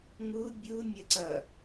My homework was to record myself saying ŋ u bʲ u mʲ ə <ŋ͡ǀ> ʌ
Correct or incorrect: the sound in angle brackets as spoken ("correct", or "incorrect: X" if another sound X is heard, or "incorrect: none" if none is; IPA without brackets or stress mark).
incorrect: ǀ